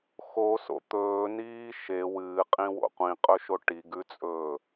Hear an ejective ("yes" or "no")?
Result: yes